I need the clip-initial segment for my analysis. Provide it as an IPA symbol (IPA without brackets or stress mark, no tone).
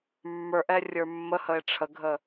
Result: mː